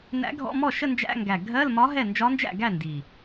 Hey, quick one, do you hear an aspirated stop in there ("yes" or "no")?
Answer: no